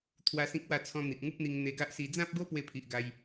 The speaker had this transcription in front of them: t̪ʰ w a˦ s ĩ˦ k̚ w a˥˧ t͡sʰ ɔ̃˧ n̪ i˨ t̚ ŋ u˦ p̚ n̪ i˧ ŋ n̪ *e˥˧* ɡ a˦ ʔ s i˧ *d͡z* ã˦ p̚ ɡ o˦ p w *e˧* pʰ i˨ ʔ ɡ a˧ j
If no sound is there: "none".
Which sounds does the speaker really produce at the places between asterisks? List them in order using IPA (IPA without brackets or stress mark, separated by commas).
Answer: e˧, d͡z, e˧